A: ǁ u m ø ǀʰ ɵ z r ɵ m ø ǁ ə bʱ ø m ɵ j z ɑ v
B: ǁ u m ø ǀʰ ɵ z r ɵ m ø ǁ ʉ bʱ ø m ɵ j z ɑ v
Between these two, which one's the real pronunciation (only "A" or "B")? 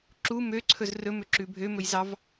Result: B